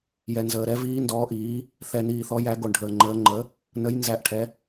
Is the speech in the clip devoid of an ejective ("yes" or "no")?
yes